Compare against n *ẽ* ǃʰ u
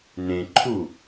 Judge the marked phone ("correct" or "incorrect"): correct